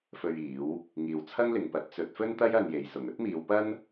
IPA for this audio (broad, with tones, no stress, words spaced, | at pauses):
fɵ˧ɥiː˨˥w | ŋiː˨wt͡sʰɐ˥ŋlɪ˨ŋpɐ˨˥t̚ t͡sɵ˨˥t̚fɵ˥nt̪ɐ˥j ɐ˧nje˨˧jsʊ˨ŋ ɵ˥t̚miː˨˧wpɐ˥n